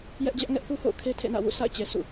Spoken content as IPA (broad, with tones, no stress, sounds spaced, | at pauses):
j ɛ˦ ʔ d͡ʑ ɛ˦ ʔ ŋ ɛ˦ ʔ θ u˦ h o̰˦˨ ʊ̯ kʰ e˦ tʰ ḛ˦˨ n ä̰˦˨ w ṵ˦˨ sʰ a̰˦˨ ɪ̯ t͡ɕ e˨ sʰ ṵ˦˨